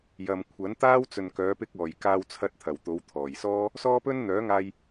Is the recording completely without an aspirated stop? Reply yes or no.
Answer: no